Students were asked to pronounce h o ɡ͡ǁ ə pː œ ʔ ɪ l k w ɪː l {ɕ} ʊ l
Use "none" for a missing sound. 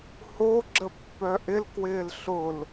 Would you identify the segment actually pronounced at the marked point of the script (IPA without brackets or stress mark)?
ɬ